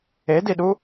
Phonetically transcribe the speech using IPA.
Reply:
ediɗu

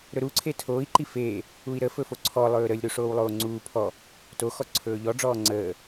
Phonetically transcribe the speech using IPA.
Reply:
ɾɵɾuǀʰe tʰoːi̯ǃi feː | ui̯ɾə fɵfoǀʰɔ lˠɵːɾəlʲ ɾuʂoːwlˠoːŋ͡ǀuː pʰɔ | toxɔ ǀʰɵːʎɔɖ͡ʐɔː ŋ͡ǀəː

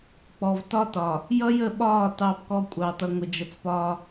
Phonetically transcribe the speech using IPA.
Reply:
k͡pɔ˨vtɒ˦tɒ˨ | jʌ˦jə˦˨ɓɒː˦˨ tɑ˦bkɔ˦kʷʼɑ˨ tʌ˨ŋʷə˨d͡ʒʌ˨t͡spɒː˦

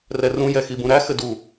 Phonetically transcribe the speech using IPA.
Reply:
rɛrũ jɛxibũɾæ xɘdu

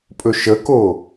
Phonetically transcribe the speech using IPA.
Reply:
pʼɵʃəko

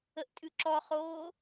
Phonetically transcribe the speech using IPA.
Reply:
əʔtʼʉǁɔχoː

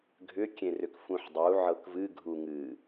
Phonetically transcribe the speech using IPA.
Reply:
ɡʱʏkʲẽrʏk fũħdˤu ʕɤkvɨ ɡʱuŋɨ

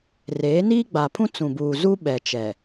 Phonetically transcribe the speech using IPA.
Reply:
reː˨˦ niː˦ɡ͡baː˨pʰũ˦ t͡sũ˨buː˨zuː˦ɓɛ˨ t͡ʃɛ˨

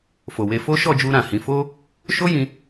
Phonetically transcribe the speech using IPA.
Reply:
fo˨we˧ fo˦ʃɔ˦˨d͡ʒu˧ ɾã˨hĩ˨˦ fo˦ | ʃo˦jĩ˧

